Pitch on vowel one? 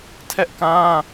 high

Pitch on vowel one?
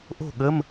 falling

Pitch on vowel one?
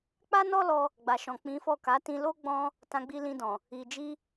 high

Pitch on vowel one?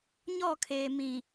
falling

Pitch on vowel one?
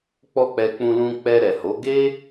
high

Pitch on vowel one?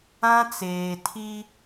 high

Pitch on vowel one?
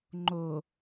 low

